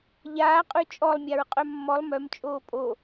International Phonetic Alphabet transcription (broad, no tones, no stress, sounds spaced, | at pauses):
ʎ aː qʼ ʉ t͡ʃʼ ɔ lˠ mʲ a ɹ qʼ œ mː ɔ lˠ m œ m t͡ʃʼ oː pʼ o